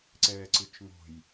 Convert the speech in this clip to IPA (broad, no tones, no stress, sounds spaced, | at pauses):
ǀ ɛː ǀ ɨ t͡ʃ ŋ o̤ j